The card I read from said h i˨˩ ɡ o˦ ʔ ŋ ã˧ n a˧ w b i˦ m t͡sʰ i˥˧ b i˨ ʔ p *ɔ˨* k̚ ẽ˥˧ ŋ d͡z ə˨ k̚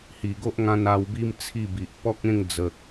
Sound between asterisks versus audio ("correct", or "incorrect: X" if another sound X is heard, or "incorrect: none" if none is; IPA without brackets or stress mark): incorrect: ɔ˦